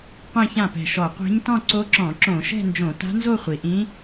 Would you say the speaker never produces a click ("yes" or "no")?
no